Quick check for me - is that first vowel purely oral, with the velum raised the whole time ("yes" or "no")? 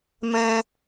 no